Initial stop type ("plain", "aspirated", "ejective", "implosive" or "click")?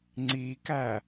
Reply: click